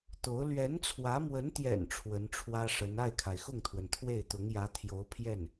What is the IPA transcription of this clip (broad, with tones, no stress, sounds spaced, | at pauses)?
t̪ o˧˥ ʊ̯ l ɥ ɛ˧˥ n t͡sʰ w ä˧˥ m w ə˧˥ n t̪ j ɛ̰˨˩ n ʈ͡ʂʰ w ə˧˥ n ʈ͡ʂʰ w ä˥ ʂ ə˧˥ n a˥˩ ɪ̯ kʰ a˩ ɪ̯ x ʊ˥˩ ŋ t̪ʰ w ə˩ n t̪ʰ w e˥˩ ɪ̯ t̪ ʊ˧˥ ŋ j ä˧˥ t̪ʰ j o˧˥ ʊ̯ pʰ j ɛ˥˩ n